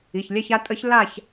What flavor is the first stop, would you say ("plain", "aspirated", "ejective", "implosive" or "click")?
ejective